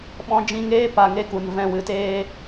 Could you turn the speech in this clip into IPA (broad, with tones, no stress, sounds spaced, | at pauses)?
ɓ ɔ̃˧ d͡ʒ ĩ˧ ŋ eː˦ p a˧ ŋ e˦ k u˨ n v ɛ̃˧ w ɨ˨ t eː˦